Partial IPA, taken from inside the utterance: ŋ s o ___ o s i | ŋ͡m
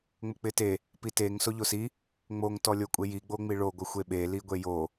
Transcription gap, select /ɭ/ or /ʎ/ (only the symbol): ʎ